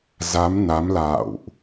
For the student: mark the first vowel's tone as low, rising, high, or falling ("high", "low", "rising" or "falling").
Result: rising